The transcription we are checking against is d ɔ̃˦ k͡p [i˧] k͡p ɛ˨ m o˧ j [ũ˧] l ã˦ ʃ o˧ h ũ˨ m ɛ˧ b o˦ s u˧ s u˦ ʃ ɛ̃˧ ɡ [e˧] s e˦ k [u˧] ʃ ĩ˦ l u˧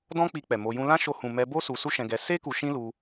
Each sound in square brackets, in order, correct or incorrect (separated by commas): correct, correct, incorrect, correct